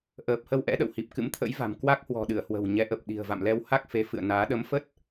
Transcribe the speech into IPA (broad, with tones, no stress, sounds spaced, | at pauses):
ʔ əː˨˩ p̚ h ə˧ w ʔ ɛ̰˧˥ ɗ ə̰˧˨ w h i˨˩ p̚ k ɨ̰˧˥ m t̪ʰ ə̰˧˥ j v a̤˨˩ m k w a˦˥ k̚ h w ɔ̤˨˩ ɗ ɨ˧˩ ə̯ h w ə̤˨˩ w ɲ ɛ˨˦ ʔ ə˨˩ p̚ ɗ i̤˨˩ ə̯ v a̰˧˨ m l ɛ˧ w h a˦˥ k̚ f e˨˦ f ɨ̰˧˨ ə̯ n aː˨˦ ɗ ə˨˦ m f ə˦˥ t̚